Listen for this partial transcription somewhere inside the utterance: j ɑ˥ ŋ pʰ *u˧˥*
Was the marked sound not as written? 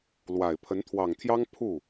yes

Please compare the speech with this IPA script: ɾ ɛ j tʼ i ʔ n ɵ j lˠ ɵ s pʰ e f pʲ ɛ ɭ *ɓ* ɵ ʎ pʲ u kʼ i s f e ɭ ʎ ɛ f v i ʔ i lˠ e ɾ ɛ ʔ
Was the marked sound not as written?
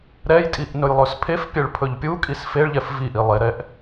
yes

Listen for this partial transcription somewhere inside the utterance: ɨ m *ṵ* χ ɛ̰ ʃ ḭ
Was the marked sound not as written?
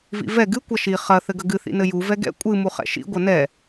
yes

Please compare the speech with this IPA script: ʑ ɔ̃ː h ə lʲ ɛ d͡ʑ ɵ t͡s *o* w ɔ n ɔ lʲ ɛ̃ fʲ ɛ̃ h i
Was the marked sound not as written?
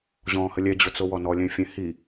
no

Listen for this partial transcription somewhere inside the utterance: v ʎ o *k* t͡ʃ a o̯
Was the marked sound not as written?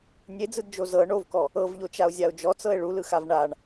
yes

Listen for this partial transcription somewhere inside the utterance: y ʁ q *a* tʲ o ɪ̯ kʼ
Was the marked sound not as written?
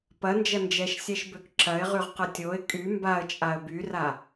yes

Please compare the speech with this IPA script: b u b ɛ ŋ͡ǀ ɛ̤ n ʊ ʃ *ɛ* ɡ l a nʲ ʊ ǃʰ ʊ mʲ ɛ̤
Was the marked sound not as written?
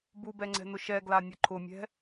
no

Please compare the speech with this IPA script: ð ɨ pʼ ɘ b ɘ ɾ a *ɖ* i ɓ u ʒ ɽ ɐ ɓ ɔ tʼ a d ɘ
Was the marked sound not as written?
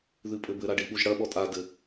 no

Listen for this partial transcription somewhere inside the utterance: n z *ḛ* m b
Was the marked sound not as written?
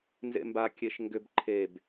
no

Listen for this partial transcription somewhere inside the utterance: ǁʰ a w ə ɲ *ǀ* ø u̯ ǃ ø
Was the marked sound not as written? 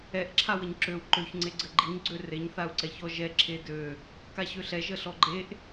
yes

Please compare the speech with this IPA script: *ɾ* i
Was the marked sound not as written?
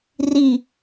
yes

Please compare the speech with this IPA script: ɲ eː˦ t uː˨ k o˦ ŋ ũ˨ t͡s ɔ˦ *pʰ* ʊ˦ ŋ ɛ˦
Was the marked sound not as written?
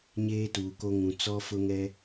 yes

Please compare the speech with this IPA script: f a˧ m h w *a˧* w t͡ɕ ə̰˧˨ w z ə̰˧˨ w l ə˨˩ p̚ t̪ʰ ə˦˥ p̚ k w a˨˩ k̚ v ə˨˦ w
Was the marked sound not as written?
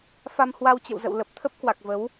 no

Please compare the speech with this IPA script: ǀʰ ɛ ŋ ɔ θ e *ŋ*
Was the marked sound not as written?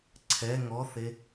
yes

